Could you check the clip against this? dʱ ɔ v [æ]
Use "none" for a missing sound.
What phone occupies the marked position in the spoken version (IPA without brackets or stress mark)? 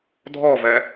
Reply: ɛ